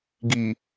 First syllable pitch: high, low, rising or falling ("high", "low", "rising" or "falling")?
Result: low